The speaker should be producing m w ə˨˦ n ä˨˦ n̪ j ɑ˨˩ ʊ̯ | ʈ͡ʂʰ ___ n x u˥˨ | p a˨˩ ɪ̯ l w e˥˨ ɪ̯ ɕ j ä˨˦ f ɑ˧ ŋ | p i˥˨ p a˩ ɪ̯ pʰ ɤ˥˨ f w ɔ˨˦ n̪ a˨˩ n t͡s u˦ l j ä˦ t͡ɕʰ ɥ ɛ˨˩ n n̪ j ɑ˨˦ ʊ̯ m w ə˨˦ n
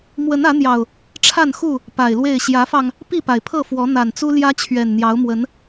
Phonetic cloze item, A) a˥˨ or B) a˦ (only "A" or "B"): A